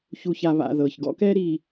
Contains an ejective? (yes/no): no